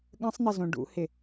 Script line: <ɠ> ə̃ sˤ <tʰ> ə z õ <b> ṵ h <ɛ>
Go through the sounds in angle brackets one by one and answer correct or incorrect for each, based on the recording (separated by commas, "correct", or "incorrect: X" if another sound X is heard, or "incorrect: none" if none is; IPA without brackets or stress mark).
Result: correct, incorrect: n̪, incorrect: ɖ, incorrect: ɪ